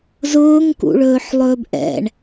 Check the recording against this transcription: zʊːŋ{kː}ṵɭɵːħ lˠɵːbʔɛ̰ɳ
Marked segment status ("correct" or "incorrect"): incorrect